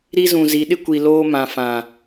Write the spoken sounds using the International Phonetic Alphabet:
ɾ i˦ z ũ˨ z i˨˦ ɗ ɪ˦ kʷ i˨ l oː˦ m ã˨ f ã˨

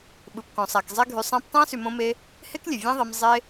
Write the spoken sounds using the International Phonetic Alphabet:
ɓ ɯ˨ p k õ˨ sˤ æ˨ k zˤ e˧ ɡʱ y˨ sˤ æ̃˧ p tˤ æ̃˦ s y˨ m õ˧ m e˧ | h e˦ k lʲ e˨ vʲ æ̃˦ ðˤ e˧ m zˤ e˦

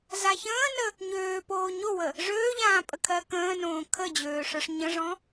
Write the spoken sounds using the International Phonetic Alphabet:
z a ç ə̃ː n ə | ɲ øː p oː ɲ o w ə | ʐ øː ʎ ãː pʼ ə kʰ ɜ k ə̃ː n õː kʰ ə d͡ʑ øː ʂ ə˞ ʂ ɲ ə̃ ʐ ɔ̃

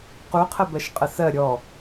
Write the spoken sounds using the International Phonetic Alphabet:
q u qʰ ə b ɜ ʃ qʼ ə s ɜ ɾʲ ɔ

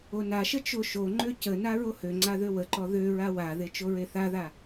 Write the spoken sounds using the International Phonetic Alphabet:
o n a ʃ ə t͡ʃ o ʃ o ŋ͡ǃ ø c ə n a ɹ o h ø ŋ͡ǀ a ð ø w ə ǃ ɔ ð ø ɹ a w a ð e t͡ʃ o ɹ e θ a ð a

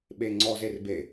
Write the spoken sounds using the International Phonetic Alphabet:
ɓ e ŋ͡ǀ ɔ z e r b e

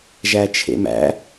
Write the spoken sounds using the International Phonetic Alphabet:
ʒ æ t͡ʃʰ ḛ m æ̰

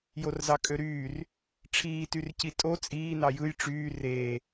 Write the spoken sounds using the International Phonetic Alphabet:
j o r z ɑ kʼ ø ɾ yː r | ʈ͡ʂʰ iː t y r c i tʼ o t͡sʼ iː n ɑ j ɯ j ʈ͡ʂ yː r eː

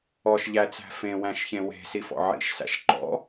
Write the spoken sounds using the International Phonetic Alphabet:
ɔ ʃ ʎ æ t͡s æ̤ f ẽ w æ̃ ʃ ç ẽ w e̤ s i f ɔ̰ ʕ ḭ ʃ s æ̰ ʃ ǃ ɔ̰

